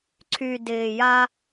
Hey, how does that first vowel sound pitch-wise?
low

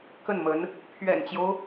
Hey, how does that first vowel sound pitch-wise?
falling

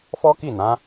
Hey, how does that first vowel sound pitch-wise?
high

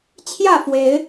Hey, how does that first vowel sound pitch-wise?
falling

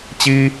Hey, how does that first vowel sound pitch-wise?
high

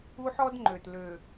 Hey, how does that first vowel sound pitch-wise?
high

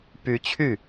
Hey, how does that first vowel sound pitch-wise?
rising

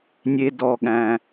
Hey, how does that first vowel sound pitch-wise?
low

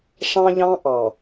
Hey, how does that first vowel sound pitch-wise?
high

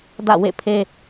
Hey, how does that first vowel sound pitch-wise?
falling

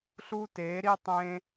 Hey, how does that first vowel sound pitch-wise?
high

